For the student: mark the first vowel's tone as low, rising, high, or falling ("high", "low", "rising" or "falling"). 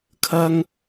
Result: high